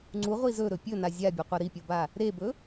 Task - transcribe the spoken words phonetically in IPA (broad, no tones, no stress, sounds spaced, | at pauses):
ŋ͡ǀ u ʁʷ i z ɵ ɾ ɵ pʲ ɵ n a zʲ a bʲ o qʷ ɐ ɾ i pʲ o b a | ɾ e b ɵ